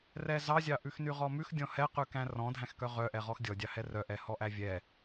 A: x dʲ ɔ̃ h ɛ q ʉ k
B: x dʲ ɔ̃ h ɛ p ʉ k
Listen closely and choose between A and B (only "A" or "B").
A